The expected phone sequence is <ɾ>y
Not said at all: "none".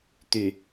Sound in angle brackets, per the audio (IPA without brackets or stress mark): t̪